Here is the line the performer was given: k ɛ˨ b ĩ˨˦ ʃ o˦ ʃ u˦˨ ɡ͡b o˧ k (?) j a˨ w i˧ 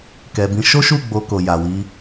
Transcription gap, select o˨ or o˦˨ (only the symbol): o˨